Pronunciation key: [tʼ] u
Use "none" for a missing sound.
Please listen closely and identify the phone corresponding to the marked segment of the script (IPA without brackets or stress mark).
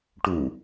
ʈ